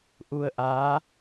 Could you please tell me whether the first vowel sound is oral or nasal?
oral